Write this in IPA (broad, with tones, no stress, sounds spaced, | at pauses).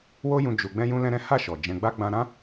w o˦ j ũ˧ d͡ʒ u˧ ɡ͡b ɛ̃˦ j ũ˦ l ɛ̃˦ ɾ ɛ̃˦ h a˦˨ ʃ ɔ˨ d͡ʒ ɛ̃˧ ɡ͡b a˦ ɡ͡b ã˧ ɾ ã˦